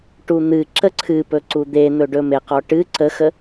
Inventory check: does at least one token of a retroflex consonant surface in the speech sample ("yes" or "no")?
yes